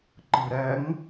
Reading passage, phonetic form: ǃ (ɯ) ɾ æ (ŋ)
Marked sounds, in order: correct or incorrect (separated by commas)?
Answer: correct, correct